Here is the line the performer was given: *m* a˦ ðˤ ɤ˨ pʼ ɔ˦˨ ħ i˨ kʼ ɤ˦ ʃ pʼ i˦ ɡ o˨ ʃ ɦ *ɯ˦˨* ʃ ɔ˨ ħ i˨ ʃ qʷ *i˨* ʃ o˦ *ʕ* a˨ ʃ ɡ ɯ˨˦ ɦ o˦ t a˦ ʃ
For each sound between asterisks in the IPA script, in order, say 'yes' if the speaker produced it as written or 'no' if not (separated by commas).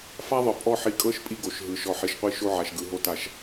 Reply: no, no, no, yes